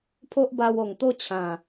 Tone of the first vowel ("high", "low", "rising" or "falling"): high